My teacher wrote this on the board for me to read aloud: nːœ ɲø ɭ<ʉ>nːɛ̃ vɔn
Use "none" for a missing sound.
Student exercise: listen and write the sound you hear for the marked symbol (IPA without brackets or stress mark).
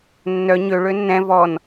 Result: ø